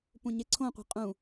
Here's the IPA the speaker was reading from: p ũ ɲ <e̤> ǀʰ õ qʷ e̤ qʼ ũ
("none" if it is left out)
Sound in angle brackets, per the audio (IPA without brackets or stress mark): e